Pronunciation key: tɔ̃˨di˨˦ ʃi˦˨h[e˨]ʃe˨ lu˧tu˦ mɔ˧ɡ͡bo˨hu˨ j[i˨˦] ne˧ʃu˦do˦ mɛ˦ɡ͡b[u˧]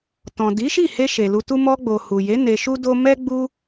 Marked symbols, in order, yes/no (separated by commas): no, no, no